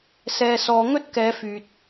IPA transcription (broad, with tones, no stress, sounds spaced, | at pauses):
s ɛː˨ s ɔː˨ ŋ ɵ˧ t̚ k ɛː˨˧ f yː˨ t̚